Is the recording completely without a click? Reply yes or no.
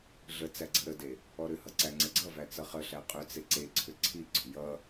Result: no